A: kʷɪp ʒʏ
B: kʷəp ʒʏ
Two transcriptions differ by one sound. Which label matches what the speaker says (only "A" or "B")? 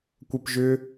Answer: B